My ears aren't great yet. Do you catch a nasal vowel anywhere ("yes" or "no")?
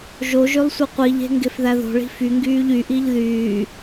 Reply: no